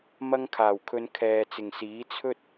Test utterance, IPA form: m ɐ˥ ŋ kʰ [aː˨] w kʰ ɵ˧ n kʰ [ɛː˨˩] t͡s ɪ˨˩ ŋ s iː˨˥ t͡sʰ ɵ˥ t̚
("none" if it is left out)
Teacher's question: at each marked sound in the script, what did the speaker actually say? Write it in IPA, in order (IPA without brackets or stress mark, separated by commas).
aː˨˩, ɛː˨